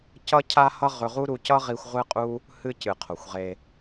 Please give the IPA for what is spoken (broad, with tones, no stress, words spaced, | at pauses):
cʌ˦cʰa˦ hʌ˦ʁɵ˧ʁu˦ɾu˧ cʌ˦ʁi˧xʷ ʁʷɨ˦qʼu˦ | hɨ˧cɨ˨ qʰo˨xʷʁe˧